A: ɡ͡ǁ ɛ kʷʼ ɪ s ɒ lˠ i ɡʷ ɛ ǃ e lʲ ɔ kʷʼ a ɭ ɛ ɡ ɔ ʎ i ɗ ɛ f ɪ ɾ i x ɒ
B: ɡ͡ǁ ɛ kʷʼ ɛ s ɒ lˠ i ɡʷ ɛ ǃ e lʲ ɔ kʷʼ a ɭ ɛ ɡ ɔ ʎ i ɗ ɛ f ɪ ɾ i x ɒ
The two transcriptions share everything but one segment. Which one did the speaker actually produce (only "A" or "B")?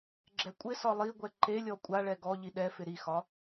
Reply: A